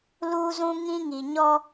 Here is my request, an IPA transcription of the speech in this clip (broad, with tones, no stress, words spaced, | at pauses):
luː˦zũ˦ŋĩ˦ŋi˨ ɲɔ˦